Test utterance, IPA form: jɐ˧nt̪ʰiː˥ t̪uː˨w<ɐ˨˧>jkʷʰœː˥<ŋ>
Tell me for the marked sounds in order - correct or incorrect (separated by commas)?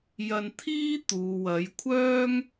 correct, correct